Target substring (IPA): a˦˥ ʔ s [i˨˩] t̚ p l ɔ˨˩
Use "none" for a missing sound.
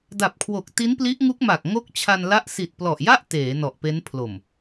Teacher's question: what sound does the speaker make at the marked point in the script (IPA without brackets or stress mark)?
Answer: i˨˩